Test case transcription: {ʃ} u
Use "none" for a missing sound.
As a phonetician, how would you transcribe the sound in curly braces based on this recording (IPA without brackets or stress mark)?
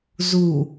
z